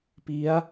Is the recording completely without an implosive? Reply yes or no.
yes